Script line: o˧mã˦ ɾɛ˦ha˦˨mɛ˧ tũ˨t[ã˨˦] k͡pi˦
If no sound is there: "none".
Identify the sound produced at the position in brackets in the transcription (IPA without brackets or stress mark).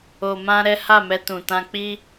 ã˧